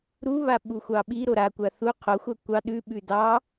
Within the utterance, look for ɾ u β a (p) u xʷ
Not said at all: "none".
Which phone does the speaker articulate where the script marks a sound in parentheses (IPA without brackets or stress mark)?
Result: ɓ